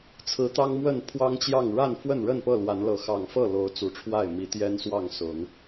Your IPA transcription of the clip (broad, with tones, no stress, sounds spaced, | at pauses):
t͡sʰ ɹ̩˨˦ t̪ ɑ˦ ŋ m w ə˥˨ n pʰ w ɑ˦ ŋ t͡ɕ j ɑ˥˨ ŋ ɻ a˥˨ n f w ə˥˨ n ɻ ə˥˨ n p ɤ˥˨ l w a˨˦ n l ɤ˨˦ x ɑ˨˩ ŋ f ɤ˥˨ l o˨˦ ʊ̯ t͡s u˨˩ ʈ͡ʂʰ w a˥˨ ɪ̯ m i˨˦ t̪ j ɛ˦ n s w ɑ˥˨ ŋ s ʊ˨˦ ŋ